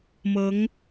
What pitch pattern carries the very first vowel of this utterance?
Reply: rising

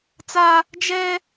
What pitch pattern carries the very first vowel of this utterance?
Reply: high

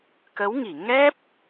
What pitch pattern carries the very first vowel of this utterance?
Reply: rising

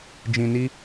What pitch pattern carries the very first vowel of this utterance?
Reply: low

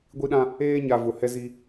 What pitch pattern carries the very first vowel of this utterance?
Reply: high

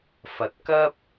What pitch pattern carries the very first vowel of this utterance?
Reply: low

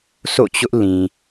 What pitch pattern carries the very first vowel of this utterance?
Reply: falling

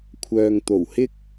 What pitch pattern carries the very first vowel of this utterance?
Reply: low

